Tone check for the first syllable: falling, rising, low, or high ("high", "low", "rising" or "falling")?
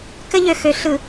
high